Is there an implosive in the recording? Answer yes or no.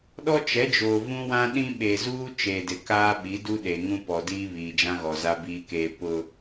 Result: yes